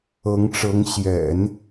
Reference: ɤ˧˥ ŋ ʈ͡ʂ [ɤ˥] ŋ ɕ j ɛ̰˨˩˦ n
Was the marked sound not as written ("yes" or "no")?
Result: yes